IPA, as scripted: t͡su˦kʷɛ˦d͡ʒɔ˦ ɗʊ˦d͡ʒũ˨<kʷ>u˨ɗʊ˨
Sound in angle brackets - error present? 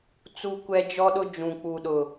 yes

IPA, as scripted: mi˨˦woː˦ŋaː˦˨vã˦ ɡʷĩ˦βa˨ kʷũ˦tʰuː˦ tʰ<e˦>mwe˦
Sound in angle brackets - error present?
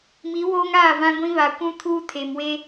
yes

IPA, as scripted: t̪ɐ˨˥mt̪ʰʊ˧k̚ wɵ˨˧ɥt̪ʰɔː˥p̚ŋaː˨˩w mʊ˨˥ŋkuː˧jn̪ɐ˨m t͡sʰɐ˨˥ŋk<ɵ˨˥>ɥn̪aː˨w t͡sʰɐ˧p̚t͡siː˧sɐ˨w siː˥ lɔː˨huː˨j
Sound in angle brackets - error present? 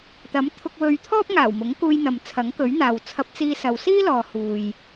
no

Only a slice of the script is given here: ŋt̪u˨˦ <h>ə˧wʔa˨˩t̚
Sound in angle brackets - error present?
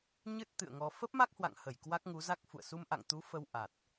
yes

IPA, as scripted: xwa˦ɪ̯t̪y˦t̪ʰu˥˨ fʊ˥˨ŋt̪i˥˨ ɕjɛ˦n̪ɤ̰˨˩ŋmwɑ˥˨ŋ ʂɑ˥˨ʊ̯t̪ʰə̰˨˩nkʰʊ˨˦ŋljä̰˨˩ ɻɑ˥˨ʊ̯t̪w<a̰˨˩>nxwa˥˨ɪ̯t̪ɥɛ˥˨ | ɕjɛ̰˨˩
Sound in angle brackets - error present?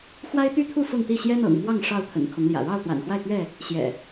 no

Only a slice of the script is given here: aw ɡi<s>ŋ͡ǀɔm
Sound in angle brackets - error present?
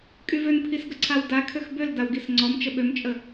no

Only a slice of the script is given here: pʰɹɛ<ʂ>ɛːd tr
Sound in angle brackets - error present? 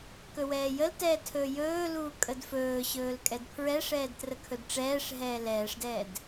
no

